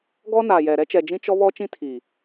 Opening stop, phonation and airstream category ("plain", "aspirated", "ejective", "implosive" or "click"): plain